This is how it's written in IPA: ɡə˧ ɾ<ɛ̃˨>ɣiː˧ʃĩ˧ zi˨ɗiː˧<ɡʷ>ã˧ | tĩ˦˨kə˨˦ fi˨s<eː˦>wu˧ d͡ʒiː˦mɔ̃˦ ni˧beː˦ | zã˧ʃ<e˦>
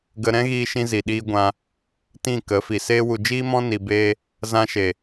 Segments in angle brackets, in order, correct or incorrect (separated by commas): incorrect, correct, correct, incorrect